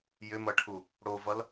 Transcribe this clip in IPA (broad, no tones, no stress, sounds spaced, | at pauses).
j ʏ m ʌ ʈʰ u | ɽ o v ʌ l